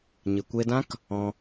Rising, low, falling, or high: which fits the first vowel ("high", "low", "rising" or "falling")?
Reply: low